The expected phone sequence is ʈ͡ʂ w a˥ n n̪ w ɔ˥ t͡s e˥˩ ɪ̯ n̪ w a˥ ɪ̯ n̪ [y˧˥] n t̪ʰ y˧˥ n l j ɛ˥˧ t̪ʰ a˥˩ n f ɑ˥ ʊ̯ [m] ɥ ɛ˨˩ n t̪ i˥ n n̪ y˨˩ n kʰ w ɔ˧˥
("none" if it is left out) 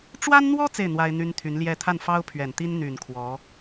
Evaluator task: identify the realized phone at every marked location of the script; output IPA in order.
y˥, pʰ

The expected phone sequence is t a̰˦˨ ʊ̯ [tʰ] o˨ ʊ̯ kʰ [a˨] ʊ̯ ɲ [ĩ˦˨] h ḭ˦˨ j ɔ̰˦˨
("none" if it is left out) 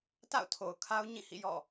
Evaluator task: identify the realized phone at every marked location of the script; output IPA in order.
tʰ, a˦, ĩ˦˨

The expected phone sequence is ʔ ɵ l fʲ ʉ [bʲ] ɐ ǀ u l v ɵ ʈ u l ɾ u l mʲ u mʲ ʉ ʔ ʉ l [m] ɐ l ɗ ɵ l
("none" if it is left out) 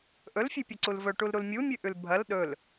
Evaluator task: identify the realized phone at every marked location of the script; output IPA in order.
pʲ, bʱ

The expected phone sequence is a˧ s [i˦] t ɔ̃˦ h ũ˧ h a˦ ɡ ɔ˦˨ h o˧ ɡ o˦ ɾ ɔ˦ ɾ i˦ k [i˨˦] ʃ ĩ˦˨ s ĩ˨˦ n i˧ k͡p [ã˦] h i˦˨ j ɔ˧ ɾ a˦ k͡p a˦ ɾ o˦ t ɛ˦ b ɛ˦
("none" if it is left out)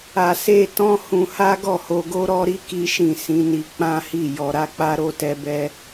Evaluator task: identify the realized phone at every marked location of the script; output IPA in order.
e˦, i˦, ã˦

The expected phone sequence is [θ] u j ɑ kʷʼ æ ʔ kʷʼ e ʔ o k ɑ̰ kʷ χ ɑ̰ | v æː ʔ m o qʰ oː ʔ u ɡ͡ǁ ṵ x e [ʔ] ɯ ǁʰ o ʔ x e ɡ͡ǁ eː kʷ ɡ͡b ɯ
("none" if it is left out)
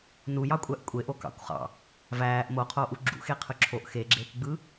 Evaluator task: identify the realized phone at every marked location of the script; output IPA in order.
n, qʰ

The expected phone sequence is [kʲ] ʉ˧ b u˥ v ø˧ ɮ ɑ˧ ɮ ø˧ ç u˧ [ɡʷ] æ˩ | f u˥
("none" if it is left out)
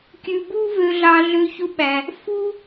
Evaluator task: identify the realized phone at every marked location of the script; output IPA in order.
kʲ, ɓ

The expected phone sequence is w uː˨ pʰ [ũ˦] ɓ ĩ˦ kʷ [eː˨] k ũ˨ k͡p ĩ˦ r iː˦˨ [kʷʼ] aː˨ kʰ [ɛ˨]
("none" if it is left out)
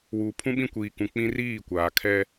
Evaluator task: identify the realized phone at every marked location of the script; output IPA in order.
ũ˦, iː˨, kʷ, ɛ˦

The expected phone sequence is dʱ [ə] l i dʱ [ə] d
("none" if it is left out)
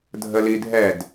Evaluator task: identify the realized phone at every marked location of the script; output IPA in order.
ə, ɛ

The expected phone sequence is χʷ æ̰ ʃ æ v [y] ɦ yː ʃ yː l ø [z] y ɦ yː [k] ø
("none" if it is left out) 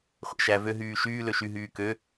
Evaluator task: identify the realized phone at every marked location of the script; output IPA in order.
ø, ʃ, k

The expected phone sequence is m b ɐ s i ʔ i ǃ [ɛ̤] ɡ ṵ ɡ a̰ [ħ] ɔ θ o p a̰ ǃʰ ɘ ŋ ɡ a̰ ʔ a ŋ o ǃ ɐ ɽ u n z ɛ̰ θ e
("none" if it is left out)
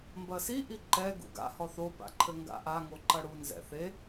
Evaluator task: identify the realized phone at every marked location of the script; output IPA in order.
ɛ, h

